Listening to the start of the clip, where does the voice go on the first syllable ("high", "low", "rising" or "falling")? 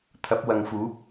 rising